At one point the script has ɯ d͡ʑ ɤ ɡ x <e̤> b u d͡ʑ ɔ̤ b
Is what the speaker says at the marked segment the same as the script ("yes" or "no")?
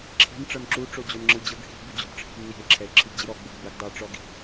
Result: no